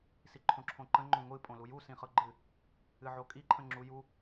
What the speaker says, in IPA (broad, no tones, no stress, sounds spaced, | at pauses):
s i ǃʰ õ ǁʰ õ ǃ ə̃ ŋ͡ǃ õ ŋʷ ɨ pʼ õ l u j u s ĩ χ ɤ ɡ͡ǃ ɨ | ɨ ʕ o kʼ i ǃʰ ə̃ ŋ͡ǁ u j u